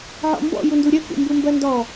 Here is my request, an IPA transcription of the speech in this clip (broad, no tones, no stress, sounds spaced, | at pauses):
ʕ ɔ̰ m b ɔ̰ j u n d u ɾʲ ɜ k ṵ m b u m b ɜ n d ɔ